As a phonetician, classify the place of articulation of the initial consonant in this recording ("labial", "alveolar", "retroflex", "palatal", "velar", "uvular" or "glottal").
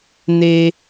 alveolar